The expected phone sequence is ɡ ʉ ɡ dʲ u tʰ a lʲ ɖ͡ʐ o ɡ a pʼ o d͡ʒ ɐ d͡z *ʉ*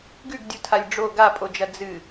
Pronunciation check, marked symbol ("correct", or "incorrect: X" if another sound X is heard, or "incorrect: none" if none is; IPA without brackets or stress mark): incorrect: ɨ